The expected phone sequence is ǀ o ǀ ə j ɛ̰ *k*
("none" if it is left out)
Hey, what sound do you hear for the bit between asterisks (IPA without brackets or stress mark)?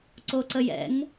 ŋ